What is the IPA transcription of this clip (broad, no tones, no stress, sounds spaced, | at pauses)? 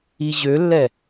i ʑ ø lː ɛ